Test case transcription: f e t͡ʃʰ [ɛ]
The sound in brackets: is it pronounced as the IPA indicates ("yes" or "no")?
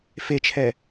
yes